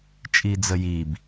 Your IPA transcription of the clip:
t͡ʃʼ i d͡z ə j i b

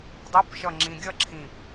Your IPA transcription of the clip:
dˤ e p ʃ ʌ ŋ͡ǁ ĩ ɡʲ ʌ ǁʰ ĩ p

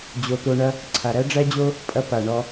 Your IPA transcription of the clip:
d͡ʑ o˨ t̪ o˧ ɳ ɐ˦ | ǀʰ a˨ ɾ æ˦ ɖ͡ʐ æ˦ d͡ʑ o˦ | pʼ ɐ˧ p a˨ ɳ ɔ˧

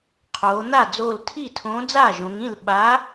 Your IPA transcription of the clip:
qʰ oː˩˧ n̪ a˥˩ d͡z oː˧˩ l tʰ i˥˩ tʰ õː˨˥ d͡z aː˥˩ ʒ õ˩˧ ŋ ĩ˥˩ l ɓ a˨˥

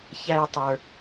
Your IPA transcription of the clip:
ç æ˥ j tˤ ə˞˧

